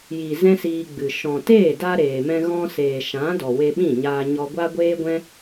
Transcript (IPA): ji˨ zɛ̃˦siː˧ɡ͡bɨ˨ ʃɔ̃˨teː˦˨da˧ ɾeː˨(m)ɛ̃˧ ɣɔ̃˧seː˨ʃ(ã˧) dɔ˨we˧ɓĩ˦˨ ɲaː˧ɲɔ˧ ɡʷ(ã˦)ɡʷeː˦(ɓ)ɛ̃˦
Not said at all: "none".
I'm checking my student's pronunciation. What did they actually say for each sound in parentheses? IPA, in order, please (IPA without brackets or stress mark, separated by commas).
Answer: m, ã˨˦, a˦, ɡʷ